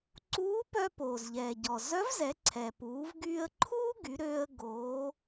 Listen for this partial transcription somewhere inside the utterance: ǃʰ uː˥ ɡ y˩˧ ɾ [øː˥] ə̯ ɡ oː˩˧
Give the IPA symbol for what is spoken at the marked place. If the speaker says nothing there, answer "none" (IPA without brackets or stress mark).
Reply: øː˧